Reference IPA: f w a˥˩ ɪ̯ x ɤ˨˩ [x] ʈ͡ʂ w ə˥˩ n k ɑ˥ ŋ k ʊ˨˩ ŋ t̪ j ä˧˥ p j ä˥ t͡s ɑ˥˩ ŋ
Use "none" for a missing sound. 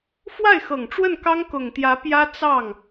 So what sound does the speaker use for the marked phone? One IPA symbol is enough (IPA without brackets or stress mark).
ŋ